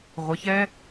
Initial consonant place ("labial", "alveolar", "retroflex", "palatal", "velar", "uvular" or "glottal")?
uvular